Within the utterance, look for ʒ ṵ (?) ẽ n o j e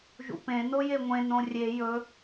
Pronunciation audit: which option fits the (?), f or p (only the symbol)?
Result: p